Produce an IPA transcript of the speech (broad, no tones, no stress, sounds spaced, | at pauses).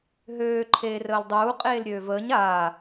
ɦ øː ǃʰ eː r əː l dˤ uː qʼ eː l ɾʲ øː v əː ɲ aː